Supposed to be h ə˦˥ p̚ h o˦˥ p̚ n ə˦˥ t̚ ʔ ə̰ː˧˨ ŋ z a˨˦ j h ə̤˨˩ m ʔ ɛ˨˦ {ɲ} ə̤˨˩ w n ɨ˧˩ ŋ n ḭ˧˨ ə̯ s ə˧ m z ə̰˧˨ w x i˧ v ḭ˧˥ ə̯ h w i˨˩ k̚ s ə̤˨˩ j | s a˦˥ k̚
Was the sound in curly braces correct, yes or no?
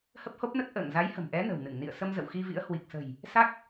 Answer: no